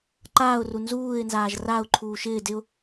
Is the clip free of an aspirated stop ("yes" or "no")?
no